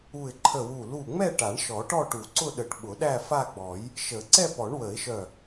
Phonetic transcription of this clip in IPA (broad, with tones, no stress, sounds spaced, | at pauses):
u˧˩ ɪ̯ ǃʰ ə˧˩ w u˧˩ l u˧˩ ŋ͡m ɛ˥˧ ʈ a˨˩˦ ɳ ʃ ɔ˨˩˦ ʈ ɔ˥˧ ʈ u˨˩˦ ǀ ʊ˥˧ ɗ ə˨˩˦ ʈ ɓ ʊ˨˩˦ ɗ æ˥˧ f a˥˧ ɡ͡b ɔ˨˩˦ j | ʃ ə˨˩˦ ǀ ɛ˥˧ p ɔ˨˩˦ ɳ w ə˨˩˦ ɪ̯ ʃ œ˧˩